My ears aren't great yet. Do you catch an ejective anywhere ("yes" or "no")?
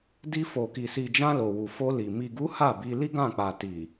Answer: no